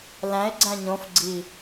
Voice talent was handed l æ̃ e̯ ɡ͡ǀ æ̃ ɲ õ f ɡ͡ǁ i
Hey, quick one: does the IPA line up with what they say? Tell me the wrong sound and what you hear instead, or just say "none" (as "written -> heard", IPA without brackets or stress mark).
ɡ͡ǁ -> ɡ͡ǀ